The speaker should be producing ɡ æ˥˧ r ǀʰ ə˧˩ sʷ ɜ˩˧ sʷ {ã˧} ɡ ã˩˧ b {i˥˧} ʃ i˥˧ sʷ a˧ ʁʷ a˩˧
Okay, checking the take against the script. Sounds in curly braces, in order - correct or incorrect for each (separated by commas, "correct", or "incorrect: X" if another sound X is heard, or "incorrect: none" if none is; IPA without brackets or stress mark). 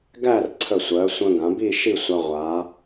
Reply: incorrect: ə̃˧, correct